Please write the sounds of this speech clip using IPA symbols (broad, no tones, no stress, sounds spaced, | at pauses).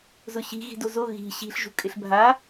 z ʊ ɕ i̤ ɣ i̤ d o z o ɣ i̤ ɕ i̤ ɬ ʒ ṳ kʼ ɪ ɬ bʱ a